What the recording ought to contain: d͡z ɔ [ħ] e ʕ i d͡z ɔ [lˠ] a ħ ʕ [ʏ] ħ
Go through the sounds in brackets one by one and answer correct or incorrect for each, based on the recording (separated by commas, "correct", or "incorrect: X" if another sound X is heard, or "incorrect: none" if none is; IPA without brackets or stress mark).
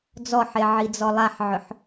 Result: correct, correct, correct